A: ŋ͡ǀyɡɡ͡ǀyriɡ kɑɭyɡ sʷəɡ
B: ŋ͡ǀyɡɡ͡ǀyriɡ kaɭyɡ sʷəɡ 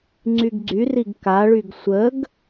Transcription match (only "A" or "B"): B